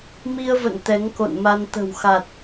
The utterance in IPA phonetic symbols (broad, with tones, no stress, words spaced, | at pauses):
mi˧ə̯və̰˧˨n t̪ɛ˨˦ŋko̰˧˨nma˧n t̪ə̤˨˩wxa˨˩t̚